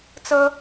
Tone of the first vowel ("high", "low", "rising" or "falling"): high